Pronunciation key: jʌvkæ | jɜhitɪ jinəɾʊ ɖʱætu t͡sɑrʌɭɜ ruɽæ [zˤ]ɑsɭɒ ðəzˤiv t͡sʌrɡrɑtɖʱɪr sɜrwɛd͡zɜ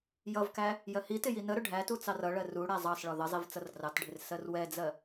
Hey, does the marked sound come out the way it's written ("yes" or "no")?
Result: yes